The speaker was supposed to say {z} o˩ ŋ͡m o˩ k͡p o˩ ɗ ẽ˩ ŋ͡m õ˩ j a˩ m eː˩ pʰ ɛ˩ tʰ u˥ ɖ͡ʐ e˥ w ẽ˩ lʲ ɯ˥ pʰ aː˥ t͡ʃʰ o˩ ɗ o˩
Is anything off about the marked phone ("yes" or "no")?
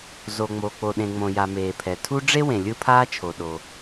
no